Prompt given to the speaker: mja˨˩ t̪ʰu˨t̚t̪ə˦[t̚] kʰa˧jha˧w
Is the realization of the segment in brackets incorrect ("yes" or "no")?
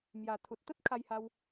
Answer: no